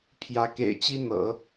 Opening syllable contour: rising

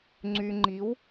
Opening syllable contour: low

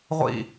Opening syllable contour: falling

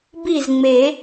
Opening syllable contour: falling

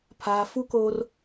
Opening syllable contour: low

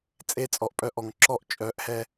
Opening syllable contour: high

